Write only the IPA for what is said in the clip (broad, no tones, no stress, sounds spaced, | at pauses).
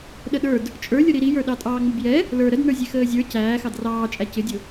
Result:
ɗ ə ɗ ə˞ d | t͡ʃʼ ə˞ lʲ ʊ ɾ i ɾ i j ə˞ ɗ ɑ tʼ ɑː ŋ͡m ʊ b j ɛ | l ə˞ ɾ ə d n ə˞ zʲ ɛ x əː zʲ ə˞ c æː x ɑ d r ɑː t͡ʃʼ æ c ɪ dʲ ʊ